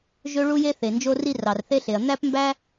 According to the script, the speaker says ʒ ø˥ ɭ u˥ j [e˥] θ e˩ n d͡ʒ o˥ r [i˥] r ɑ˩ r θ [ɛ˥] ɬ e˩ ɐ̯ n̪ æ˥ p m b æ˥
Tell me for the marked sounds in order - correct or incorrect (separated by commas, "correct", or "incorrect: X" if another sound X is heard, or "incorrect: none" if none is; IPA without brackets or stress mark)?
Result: correct, correct, incorrect: e˥